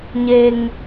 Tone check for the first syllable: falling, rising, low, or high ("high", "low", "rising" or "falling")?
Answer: low